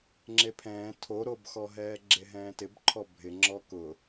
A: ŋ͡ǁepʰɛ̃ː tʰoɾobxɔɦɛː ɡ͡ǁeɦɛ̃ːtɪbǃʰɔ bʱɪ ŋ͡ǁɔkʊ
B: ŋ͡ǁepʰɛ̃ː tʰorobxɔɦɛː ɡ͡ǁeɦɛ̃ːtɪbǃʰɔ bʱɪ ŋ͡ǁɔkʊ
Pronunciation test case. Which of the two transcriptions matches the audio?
A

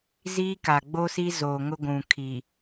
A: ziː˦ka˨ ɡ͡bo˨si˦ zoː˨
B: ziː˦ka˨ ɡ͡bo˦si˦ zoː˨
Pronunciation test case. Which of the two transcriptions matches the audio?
B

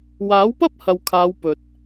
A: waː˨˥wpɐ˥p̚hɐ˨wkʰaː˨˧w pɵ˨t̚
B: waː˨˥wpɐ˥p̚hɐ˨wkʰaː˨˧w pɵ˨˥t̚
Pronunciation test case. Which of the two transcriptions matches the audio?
A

